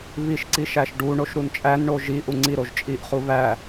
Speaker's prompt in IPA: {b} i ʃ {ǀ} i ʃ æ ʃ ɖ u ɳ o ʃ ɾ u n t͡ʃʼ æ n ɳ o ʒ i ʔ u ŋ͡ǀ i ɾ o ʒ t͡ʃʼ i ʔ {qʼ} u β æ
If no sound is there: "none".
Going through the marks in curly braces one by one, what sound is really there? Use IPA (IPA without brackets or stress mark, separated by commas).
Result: β, ǀ, χ